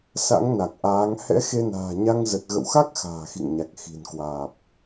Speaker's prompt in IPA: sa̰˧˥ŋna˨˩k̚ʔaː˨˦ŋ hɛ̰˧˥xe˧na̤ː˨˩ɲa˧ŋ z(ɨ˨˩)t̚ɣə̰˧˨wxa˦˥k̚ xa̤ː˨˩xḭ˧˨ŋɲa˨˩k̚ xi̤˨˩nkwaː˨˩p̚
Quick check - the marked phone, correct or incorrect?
incorrect